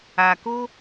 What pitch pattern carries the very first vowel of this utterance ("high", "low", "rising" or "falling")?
low